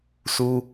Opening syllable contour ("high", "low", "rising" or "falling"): high